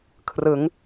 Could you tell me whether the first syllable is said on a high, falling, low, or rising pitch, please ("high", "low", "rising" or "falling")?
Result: rising